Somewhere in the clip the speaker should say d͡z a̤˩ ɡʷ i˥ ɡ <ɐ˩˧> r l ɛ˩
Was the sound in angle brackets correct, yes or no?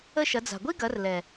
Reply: yes